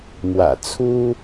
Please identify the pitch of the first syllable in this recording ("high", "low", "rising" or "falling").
low